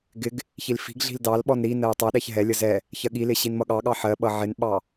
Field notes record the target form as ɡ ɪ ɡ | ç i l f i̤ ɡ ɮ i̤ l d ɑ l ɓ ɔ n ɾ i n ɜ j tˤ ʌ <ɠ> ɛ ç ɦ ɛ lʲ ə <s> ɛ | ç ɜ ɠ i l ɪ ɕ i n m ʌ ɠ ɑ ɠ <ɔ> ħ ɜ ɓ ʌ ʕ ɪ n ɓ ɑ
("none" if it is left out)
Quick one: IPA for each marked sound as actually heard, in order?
ɗ, z, ɑ

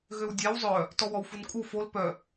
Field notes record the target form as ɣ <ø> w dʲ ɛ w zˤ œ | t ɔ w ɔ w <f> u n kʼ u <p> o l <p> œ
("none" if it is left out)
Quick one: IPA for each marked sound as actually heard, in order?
ø, f, f, p

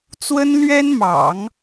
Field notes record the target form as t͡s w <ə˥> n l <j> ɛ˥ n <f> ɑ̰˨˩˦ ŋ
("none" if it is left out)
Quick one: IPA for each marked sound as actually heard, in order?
ə˥, ɥ, m

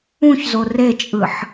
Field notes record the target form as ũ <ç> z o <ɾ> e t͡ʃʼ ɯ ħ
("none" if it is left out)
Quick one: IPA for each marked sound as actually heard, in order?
ç, r

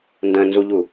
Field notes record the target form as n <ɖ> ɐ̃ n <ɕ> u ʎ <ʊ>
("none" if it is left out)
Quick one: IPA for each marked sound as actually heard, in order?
d, z, u

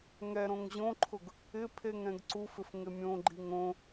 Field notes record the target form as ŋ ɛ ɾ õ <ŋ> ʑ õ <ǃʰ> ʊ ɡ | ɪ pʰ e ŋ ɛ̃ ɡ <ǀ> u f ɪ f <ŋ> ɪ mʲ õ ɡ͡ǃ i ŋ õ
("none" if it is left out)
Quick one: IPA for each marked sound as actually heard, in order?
ŋ, ǃʰ, ǀ, ŋ

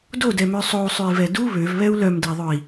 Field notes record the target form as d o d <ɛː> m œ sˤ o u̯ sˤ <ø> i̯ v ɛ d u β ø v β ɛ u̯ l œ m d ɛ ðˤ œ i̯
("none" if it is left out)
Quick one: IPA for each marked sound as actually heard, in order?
ɛ, ø

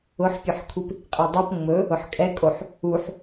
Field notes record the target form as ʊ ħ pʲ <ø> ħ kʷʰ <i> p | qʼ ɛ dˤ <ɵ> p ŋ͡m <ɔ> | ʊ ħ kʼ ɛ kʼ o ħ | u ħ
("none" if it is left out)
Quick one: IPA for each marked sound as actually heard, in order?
ɵ, i, o, ɵ

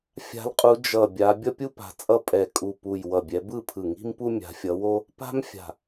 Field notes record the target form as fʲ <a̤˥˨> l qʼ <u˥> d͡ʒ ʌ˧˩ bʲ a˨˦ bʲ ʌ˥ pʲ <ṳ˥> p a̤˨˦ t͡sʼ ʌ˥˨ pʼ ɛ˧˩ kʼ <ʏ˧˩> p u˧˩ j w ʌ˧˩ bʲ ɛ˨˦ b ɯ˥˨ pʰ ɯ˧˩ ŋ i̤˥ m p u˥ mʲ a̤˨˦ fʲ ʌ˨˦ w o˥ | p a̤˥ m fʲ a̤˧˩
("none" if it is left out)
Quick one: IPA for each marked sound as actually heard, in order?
a̤˨˦, u˨˦, u˥, u˧˩

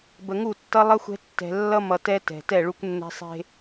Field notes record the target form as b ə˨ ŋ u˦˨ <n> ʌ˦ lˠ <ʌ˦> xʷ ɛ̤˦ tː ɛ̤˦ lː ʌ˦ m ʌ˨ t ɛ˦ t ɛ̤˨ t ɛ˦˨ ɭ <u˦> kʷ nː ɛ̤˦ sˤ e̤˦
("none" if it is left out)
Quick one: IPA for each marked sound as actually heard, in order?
tː, ʌ˦, u˦

